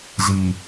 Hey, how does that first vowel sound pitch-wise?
low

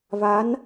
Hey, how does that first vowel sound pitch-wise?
rising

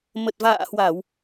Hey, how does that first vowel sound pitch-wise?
low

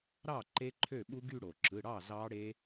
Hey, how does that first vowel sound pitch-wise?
falling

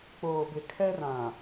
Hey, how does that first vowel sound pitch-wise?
low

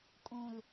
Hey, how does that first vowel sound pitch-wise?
low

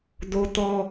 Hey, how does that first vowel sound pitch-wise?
high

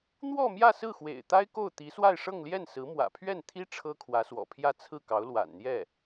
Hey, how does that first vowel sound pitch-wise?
falling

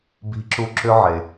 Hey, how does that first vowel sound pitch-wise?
rising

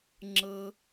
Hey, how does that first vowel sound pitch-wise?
low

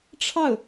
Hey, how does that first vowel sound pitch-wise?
falling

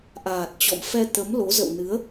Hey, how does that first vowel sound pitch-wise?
low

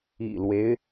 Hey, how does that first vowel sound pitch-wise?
low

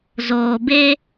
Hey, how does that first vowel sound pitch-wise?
low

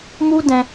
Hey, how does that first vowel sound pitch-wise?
high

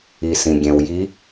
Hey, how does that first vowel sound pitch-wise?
low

